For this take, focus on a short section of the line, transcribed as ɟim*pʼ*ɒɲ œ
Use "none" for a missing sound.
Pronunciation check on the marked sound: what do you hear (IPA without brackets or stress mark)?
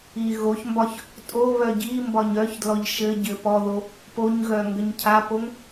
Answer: b